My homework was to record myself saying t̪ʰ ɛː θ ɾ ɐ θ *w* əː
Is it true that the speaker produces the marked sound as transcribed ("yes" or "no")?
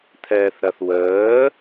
yes